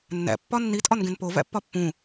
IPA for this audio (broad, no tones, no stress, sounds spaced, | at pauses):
nː æ̰ pː ɒ nː i tʼ ɒ n ɡ ẽ n p o v æ̰ pː ɒ pː ũ